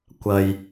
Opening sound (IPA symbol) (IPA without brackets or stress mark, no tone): kʷ